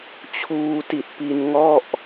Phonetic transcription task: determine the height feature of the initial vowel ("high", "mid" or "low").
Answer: high